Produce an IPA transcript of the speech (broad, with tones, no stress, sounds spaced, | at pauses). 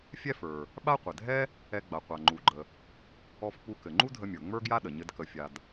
fʲ ɛ˥ f ə˞˩ | ɓ a˥ qʷ ɘ˩ dʱ ɛ˥ | ɛ˧ ɡ͡b a˩ qʷ a˩ ŋ͡ǃ u˩ ɡ͡ǃ ə˩ | ɔ˧ f k͡p u˧ k ɘ˩ ŋ͡ǃ u˥ dʱ ə˧ mʲ ə˞˩ ŋ͡m ə˞˥ ɡ j a˥ ɗ ə˩ ɲ ɘ˧ d k ə˩ fʲ a˩ d